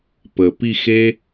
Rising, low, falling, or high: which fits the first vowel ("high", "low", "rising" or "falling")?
low